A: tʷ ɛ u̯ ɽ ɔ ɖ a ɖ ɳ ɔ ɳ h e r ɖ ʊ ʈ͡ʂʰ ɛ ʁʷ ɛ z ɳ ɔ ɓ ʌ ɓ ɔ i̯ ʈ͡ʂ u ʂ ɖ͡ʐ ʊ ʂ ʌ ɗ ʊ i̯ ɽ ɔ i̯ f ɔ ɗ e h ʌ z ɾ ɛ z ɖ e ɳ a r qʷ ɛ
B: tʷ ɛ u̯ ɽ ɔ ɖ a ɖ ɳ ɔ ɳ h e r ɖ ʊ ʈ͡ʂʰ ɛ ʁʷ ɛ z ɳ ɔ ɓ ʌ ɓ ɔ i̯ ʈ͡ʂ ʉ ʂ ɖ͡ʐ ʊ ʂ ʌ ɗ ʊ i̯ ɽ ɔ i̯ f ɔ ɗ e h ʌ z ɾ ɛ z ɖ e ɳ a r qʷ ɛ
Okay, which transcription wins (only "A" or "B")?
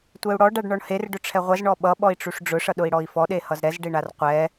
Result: A